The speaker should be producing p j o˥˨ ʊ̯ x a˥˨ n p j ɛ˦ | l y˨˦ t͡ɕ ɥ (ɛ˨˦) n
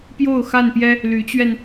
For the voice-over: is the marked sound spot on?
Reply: no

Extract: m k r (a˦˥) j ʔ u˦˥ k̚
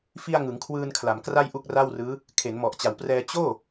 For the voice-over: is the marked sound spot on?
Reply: no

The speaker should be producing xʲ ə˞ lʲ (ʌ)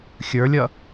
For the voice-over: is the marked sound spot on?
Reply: yes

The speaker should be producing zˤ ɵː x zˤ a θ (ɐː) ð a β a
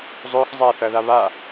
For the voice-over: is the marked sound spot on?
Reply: yes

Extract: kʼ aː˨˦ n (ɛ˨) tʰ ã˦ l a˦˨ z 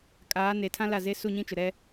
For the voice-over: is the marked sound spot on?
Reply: no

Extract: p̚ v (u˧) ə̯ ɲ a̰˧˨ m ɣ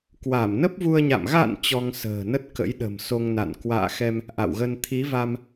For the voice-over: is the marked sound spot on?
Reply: yes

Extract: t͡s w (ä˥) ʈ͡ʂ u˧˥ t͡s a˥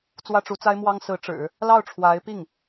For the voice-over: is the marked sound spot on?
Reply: yes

